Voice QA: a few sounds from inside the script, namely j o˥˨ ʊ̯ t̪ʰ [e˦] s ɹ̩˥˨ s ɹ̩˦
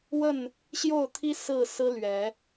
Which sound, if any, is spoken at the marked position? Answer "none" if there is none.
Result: i˦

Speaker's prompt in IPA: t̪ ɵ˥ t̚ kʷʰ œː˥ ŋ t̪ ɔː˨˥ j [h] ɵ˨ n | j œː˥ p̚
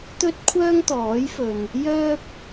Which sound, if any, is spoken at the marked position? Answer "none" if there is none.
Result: f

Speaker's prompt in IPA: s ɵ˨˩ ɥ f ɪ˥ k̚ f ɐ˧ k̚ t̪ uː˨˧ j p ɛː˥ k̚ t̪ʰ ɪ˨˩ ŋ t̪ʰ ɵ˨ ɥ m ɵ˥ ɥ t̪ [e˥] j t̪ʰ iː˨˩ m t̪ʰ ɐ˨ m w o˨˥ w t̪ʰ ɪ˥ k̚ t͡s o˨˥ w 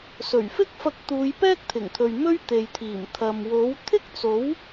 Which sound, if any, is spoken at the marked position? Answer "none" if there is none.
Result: e˨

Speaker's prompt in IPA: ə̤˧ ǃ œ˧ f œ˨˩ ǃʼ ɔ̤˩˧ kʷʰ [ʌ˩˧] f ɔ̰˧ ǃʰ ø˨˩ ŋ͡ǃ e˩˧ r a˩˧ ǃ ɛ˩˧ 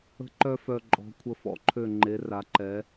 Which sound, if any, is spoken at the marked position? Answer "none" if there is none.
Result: ə˩˧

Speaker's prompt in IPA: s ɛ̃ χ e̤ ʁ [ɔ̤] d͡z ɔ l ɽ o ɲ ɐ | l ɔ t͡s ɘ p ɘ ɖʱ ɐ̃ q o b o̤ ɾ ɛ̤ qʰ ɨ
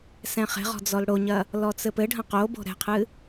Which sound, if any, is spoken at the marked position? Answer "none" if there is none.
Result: ɔ̤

